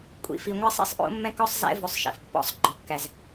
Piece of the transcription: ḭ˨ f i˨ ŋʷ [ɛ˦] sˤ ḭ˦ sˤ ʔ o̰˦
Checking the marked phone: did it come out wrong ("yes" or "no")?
no